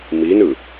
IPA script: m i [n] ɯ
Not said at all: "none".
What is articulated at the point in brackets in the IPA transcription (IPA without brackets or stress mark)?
n